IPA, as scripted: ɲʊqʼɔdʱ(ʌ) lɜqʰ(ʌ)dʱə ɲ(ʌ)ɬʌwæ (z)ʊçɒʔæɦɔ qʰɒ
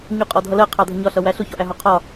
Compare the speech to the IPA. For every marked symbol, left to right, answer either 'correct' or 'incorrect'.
correct, incorrect: ɑ, incorrect: ɒ, incorrect: ɬ

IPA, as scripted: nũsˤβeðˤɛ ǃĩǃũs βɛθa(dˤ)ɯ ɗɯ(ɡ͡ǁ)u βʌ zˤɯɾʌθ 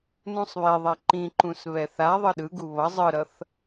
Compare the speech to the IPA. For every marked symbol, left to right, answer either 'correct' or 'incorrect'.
incorrect: ðˤ, incorrect: ɡ

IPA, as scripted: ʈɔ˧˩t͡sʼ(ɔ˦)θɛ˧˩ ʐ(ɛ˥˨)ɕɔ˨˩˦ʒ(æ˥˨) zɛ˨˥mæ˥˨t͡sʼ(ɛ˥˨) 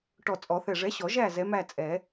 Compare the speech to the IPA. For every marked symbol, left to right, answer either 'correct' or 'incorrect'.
incorrect: ɔ˨˩˦, incorrect: ɛ˨˥, correct, incorrect: ɛ˨˩˦

